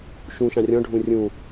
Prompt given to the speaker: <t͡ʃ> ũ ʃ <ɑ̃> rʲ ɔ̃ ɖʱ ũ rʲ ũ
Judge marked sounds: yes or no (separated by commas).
no, yes